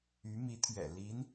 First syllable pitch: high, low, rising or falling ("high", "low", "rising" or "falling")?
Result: rising